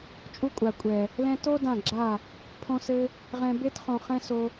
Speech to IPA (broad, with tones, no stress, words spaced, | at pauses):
t͡ʃʼu˧kʷʼa˨kʷʼɛ˨ | lɛ̃˧to˦ dã˦˨ɡ͡ǁa˦˨ | pʰõ˧sɘ˧ | ʁɛ̃˧be˦t χõ˧χɛ̃˦so˧